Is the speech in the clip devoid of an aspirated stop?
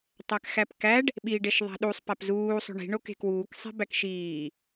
yes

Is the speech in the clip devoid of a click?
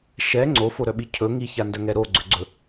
no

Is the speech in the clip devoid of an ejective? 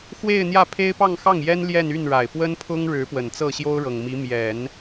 yes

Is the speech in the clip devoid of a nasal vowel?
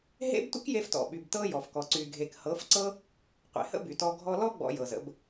yes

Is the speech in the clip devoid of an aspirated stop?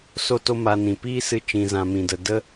yes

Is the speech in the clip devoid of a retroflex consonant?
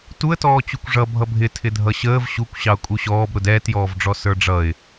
no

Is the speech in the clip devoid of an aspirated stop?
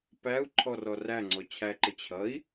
no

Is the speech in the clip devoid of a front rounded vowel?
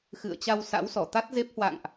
yes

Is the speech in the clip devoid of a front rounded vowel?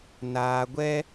yes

